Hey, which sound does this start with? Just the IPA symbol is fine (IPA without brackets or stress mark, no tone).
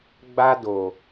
ɡ͡b